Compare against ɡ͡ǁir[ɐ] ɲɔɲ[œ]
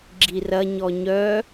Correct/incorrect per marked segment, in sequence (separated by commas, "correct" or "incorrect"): correct, correct